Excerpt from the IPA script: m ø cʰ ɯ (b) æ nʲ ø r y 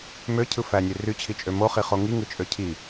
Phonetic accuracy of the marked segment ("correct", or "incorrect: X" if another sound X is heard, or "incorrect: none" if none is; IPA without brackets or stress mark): incorrect: f